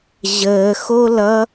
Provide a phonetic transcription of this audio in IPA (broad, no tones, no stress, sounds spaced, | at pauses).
ʑ əː x o l ʌ